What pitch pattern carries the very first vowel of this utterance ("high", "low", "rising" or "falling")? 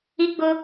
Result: high